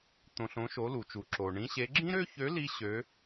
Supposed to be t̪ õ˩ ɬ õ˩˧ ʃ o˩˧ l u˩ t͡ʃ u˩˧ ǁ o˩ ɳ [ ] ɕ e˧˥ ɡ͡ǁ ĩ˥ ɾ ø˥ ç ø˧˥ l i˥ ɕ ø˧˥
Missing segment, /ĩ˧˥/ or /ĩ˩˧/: ĩ˧˥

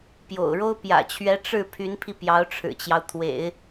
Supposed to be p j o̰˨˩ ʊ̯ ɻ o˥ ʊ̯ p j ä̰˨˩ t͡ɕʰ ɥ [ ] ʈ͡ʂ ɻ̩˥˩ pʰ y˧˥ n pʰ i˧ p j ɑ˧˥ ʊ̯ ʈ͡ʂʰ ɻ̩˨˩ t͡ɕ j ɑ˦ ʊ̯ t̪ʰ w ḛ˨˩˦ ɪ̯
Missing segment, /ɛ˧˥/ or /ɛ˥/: ɛ˧˥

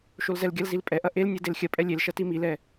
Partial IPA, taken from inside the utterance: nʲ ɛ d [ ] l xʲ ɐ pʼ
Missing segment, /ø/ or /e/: e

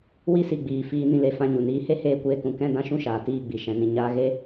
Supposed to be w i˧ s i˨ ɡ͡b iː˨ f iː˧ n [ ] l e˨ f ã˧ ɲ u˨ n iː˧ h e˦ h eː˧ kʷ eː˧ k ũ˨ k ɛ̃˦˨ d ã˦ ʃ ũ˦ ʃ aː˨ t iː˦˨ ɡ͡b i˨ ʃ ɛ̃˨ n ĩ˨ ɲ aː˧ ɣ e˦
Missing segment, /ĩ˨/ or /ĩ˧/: ĩ˧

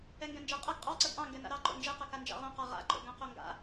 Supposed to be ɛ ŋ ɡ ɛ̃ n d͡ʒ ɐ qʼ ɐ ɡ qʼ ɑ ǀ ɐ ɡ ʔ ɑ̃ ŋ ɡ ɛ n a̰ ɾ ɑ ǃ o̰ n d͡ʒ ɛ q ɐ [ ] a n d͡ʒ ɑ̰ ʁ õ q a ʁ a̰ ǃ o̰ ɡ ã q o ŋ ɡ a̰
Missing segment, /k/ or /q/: k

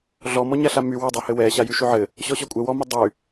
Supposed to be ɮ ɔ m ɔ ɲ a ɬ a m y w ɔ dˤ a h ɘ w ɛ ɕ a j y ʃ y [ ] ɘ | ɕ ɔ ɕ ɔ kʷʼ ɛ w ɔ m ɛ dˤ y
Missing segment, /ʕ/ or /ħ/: ʕ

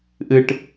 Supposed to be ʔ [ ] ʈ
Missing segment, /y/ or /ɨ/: ɨ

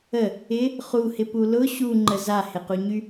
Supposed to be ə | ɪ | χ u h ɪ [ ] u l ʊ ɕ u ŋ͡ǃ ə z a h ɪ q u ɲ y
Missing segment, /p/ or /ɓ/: p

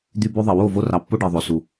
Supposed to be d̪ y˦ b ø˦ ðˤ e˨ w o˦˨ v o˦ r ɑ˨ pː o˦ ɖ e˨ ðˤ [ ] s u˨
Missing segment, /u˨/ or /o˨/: o˨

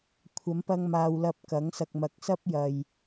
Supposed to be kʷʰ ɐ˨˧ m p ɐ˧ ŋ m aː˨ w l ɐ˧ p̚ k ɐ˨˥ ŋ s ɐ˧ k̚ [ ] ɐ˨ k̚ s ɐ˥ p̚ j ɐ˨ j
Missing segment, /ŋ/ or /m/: m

